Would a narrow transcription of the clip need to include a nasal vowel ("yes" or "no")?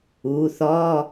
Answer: no